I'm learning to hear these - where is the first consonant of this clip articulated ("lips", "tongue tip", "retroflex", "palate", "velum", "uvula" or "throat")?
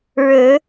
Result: retroflex